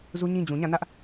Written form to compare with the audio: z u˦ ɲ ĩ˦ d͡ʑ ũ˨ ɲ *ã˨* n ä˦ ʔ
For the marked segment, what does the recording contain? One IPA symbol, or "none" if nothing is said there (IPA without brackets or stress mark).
ã˦˨